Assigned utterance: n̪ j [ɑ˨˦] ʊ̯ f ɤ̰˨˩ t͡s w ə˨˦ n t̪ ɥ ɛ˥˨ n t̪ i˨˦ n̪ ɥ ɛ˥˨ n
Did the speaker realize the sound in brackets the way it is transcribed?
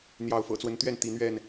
yes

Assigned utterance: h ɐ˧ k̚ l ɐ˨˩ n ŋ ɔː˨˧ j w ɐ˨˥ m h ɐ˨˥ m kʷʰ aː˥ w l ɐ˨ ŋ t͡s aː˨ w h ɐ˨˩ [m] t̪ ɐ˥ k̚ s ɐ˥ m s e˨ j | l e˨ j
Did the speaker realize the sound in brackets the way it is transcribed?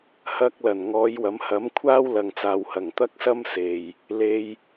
no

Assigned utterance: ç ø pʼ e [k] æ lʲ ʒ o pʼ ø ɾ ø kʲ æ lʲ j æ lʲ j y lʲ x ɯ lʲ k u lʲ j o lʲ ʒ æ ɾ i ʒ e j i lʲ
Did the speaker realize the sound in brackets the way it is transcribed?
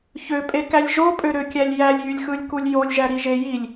yes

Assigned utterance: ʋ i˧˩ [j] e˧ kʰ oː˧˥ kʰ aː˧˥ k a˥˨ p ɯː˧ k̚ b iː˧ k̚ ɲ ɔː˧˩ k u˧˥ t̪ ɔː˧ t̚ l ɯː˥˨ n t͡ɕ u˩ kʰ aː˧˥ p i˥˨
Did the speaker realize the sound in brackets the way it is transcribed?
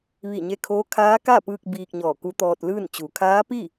no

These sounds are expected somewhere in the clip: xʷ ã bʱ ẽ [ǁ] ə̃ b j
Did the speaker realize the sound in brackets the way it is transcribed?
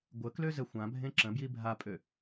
yes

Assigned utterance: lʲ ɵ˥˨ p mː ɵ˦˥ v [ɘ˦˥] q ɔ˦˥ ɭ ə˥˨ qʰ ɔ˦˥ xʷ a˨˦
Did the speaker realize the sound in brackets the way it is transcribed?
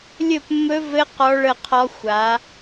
yes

